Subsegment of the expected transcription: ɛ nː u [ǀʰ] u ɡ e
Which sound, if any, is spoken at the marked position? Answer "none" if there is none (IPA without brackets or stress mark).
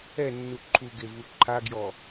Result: ǃʰ